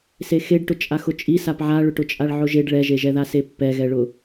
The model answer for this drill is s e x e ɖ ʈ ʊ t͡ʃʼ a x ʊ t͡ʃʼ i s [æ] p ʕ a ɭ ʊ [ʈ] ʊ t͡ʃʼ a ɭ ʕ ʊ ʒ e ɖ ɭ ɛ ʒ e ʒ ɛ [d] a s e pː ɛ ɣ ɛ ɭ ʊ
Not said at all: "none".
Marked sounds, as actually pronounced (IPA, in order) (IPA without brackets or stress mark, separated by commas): a, ʈ, ð